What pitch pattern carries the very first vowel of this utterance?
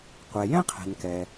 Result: low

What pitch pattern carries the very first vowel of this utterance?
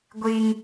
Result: high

